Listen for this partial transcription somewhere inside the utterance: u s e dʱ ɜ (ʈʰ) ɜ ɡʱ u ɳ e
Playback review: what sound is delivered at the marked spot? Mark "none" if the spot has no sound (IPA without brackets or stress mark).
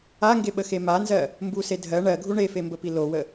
ɳ